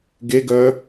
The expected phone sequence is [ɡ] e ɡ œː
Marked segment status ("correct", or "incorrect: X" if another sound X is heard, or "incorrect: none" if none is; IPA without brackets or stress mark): correct